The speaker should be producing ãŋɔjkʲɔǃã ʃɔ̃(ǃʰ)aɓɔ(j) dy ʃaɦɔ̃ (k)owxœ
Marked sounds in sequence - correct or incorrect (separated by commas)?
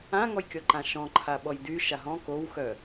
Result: correct, correct, correct